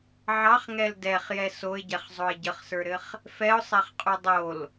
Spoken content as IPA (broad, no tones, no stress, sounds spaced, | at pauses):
ʕ ɑ χ ŋ ɛ l d ɛ χ j ɛ s o ɪ̯ ɟ ɛ χ zˤ o ɪ̯ ɟ ə χ s ə˞ ɾ ɘ χ | f ɛ ʊ̯ sˤ ɛ χ qʼ u dˤ o l